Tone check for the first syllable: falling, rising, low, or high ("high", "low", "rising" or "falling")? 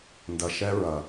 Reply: low